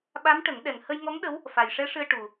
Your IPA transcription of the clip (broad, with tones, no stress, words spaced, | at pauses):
ɓa˧˥mʈə˨˩˦ŋ ɗɛ˨˩ŋhə˧j ŋɔ˧˥ŋɗə˧˥w | fa˨˩jʂɛ˧˥ ʂɨ˧ə̯ ʈu˨˩